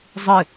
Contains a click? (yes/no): no